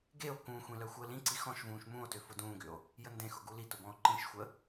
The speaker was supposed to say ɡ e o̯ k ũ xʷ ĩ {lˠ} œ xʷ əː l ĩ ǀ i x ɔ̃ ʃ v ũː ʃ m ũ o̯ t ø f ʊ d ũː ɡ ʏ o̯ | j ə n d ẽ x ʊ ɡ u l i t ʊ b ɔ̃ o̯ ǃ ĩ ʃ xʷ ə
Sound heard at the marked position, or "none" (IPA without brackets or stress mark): l